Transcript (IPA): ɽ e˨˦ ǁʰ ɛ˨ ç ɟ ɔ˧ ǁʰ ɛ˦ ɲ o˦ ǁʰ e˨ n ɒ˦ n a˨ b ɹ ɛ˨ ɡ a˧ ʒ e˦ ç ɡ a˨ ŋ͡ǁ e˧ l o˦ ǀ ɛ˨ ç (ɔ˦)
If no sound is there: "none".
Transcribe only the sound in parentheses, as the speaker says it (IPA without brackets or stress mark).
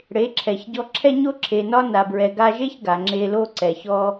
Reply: ɔ˦